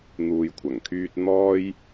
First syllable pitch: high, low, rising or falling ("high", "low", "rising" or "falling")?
low